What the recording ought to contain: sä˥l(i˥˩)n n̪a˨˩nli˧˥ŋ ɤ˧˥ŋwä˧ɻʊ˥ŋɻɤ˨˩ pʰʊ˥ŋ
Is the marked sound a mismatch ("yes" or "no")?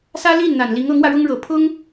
no